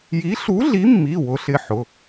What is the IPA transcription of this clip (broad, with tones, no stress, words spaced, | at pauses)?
ji˨˥ɬu˨˥ɮi˨˥mːi˩˧˩ wʊ˨˥ɬɪ˩˧˩ħʊ˩˧˩